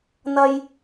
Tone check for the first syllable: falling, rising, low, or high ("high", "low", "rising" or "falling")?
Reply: high